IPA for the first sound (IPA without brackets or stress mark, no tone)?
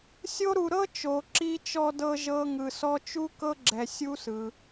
sʲ